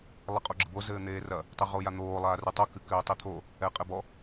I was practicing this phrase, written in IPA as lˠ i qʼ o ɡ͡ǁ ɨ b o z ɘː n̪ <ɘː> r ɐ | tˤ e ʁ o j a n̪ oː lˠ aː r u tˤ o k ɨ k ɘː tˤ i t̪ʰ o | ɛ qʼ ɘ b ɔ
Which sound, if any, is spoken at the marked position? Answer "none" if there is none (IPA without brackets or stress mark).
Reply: eː